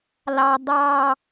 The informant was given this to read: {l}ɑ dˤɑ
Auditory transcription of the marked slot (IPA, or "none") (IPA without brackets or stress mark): l